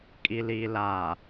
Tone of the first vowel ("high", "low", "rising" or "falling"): low